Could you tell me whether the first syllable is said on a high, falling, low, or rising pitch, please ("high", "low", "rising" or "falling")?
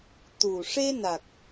low